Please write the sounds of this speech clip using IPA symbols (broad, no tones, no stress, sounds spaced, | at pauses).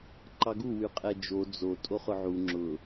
ǃ ɑ ɡ u w y qʼ ɛ d͡ʒ o d͡z o tʼ o χ ʊ ʕ u ŋ͡ǁ ʊ